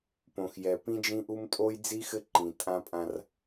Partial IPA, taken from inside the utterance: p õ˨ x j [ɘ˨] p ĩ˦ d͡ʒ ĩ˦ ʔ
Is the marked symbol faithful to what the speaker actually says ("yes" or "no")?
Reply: no